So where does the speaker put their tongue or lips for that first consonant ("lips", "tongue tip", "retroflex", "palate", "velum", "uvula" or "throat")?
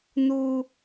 tongue tip